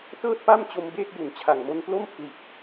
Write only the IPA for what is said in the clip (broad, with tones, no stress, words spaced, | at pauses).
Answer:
tɤː˥˩t̚pa˥˩mt͡ɕo˧m beː˥˩k̚ju˩˦nt͡ɕʰa˨˩ŋmo˧n plo˥˩mpʰli˨˩t̚